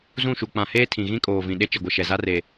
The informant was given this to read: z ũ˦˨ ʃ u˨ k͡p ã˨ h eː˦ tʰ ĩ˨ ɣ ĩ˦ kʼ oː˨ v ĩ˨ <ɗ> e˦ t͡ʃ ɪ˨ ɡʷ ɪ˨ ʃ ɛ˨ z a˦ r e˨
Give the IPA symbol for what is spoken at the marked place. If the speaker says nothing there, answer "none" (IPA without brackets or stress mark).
ɗ